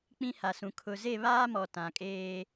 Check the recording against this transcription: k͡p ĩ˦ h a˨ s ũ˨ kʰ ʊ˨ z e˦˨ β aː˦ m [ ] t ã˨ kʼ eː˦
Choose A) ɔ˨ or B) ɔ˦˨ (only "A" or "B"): A